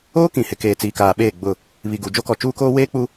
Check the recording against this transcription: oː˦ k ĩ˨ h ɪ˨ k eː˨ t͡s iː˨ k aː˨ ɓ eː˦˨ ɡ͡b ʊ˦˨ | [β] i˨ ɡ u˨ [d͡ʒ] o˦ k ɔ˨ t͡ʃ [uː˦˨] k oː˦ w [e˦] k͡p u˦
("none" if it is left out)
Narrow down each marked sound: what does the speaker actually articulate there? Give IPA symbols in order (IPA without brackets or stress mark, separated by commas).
β, d͡ʒ, uː˦, eː˦